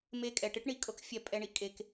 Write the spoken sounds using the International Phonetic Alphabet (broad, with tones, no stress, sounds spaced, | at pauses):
m e˧ kʼ ɛ˨ ʈ ɪ˦ ʈ ɳ i˧ kʼ ɤ˦ k fʲ ɛ˧ pʼ ɛ˦ ɳ i˦ ʔ kʼ e˦ k